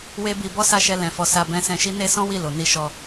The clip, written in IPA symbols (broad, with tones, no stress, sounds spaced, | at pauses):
w e˦ b i˧ b ɔ˦ s a˦˨ ʃ ɛ˧ l ɛ̃˨ f ɔ˨ s a˧ b ɛ̃˧ s ɛ̃˧ ʃ i˦ n e˦ s ɔ̃˦ w i˦˨ l o˨ n i˧ ʃ ɔ˧